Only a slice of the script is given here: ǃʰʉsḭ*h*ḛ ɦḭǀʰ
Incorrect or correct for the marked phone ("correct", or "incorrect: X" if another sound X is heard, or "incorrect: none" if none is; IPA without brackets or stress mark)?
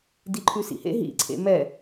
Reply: correct